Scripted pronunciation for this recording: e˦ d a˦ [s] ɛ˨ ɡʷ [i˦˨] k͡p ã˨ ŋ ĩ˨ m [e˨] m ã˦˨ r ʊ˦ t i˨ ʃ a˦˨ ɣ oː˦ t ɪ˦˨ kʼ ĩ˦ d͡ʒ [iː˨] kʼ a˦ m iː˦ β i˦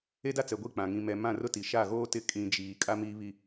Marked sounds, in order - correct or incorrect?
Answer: incorrect, correct, incorrect, correct

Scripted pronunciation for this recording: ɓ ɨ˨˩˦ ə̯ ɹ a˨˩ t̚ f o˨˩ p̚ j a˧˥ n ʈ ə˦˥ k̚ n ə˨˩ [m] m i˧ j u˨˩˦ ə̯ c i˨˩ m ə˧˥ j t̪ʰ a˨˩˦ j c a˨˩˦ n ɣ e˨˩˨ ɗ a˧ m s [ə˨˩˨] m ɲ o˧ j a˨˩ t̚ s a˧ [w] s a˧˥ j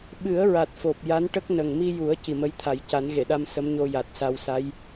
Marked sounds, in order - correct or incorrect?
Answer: incorrect, incorrect, correct

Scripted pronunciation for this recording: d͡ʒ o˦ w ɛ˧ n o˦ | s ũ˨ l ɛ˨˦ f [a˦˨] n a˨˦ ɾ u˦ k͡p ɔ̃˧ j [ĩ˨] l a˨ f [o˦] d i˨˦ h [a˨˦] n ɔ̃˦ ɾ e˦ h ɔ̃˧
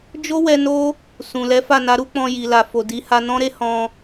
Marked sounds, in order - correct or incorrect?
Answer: correct, incorrect, incorrect, incorrect

